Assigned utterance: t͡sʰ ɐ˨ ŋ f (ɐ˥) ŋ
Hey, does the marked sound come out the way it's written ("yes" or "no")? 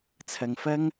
yes